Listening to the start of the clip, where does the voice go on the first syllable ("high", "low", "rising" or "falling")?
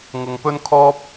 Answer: low